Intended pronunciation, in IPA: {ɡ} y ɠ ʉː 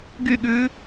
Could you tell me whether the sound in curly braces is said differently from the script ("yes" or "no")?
no